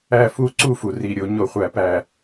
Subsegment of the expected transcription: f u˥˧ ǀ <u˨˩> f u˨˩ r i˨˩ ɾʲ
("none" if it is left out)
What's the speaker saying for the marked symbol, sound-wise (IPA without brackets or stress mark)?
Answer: u˥˧